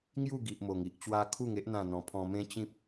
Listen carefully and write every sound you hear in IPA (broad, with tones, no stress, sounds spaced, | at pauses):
ŋ j u˥˧ ɡ i˨ ʔ m o˨˩ ŋ i˨ ʔ t͡ɕ w a˦ kʰ u˥˧ ŋ e˦ ʔ n̪ ã˥˧ n̪ ɔ̃˧ pʰ ɔ̃˧ m ẽ˦ t͡ɕ ĩ˦ p̚